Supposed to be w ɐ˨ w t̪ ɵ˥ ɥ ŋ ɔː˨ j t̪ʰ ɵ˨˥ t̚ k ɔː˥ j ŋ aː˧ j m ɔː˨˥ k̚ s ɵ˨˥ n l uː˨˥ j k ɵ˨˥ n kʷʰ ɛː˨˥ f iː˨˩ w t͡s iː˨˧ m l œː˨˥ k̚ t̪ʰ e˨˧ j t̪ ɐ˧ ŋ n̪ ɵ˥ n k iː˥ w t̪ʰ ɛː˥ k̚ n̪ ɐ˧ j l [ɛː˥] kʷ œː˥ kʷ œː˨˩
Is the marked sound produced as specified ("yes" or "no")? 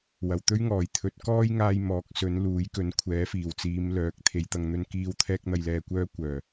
no